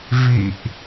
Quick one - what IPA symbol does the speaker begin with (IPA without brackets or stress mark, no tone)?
v